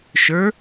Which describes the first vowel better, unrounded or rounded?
unrounded